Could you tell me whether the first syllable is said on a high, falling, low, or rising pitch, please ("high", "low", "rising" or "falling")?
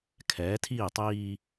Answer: rising